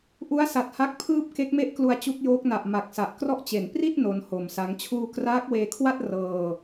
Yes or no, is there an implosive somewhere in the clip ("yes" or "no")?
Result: no